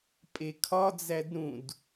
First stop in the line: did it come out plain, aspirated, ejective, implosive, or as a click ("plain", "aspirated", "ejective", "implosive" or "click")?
ejective